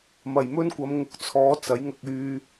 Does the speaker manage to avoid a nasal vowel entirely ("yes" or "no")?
yes